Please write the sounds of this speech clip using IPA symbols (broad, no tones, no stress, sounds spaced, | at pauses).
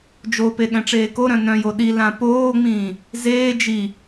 d͡ʒ o p e ɠ ɛ̃ ʈ͡ʂ eː k o ɾ œ̃ n œ̃ j o ɗ i l ã p oː ŋ͡m ĩː | z eː d͡ʒ i